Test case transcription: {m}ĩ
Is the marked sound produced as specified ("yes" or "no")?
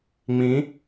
no